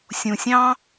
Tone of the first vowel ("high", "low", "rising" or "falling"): low